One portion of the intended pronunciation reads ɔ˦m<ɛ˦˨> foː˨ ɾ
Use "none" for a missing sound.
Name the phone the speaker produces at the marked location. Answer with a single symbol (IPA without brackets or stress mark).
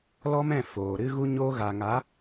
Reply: ɛ̃˦˨